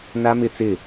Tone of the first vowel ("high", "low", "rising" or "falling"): high